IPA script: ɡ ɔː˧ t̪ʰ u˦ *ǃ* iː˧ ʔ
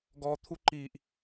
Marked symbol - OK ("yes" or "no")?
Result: yes